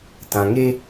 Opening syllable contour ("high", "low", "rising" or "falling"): low